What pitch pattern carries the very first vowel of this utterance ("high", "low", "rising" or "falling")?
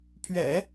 low